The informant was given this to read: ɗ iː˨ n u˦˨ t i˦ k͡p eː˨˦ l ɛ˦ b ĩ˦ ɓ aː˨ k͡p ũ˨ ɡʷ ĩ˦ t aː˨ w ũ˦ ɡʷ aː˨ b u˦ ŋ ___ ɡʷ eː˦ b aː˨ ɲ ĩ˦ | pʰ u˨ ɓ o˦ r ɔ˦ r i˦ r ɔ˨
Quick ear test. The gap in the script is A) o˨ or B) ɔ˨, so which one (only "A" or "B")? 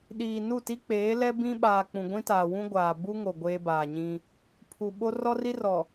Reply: A